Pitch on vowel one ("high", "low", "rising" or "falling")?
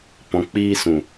low